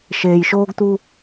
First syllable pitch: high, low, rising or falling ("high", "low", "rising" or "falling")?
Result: low